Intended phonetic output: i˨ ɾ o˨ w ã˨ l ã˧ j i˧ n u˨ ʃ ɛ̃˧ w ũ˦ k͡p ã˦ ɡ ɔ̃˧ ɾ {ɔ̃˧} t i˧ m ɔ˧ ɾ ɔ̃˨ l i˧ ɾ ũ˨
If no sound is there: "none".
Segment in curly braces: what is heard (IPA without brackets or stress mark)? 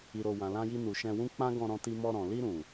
ɔ̃˧